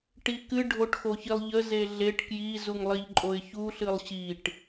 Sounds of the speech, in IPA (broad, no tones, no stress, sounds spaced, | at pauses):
ʈ i k ɨ ɖʱ o ʈ x o ç i lˠ ʎ ə z e ɮ e ʈ k j i z u ŋ lˠ i ʎ ǃʼ o ɪ̯ ç u ɬ ɨ lˠ ɕ i ʈ